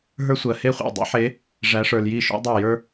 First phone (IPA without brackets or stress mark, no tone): ɦ